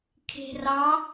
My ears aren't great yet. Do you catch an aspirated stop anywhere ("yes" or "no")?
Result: yes